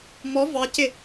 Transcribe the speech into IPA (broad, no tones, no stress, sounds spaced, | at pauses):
m ɔ v ɑ c ɪ